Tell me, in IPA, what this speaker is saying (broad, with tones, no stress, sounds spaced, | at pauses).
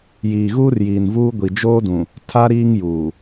j iː˨ ɣ uː˦ r j iː˨ n v uː˦ ɡʷ i˨ d͡ʒ oː˦ d ũ˨ | tʰ a˦ ɾ iː˦ ŋ j uː˨